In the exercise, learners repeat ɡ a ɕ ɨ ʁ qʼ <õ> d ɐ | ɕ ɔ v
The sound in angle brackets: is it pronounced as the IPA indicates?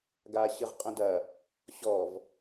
yes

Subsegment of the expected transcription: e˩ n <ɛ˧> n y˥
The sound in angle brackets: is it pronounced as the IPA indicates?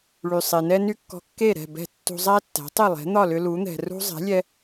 no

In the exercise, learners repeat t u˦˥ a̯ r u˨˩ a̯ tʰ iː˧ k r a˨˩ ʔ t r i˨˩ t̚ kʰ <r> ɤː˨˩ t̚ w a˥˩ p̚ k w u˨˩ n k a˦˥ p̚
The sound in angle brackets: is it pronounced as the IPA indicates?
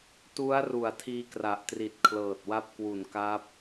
no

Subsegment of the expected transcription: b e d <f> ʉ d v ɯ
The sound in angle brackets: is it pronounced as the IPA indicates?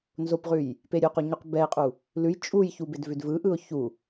no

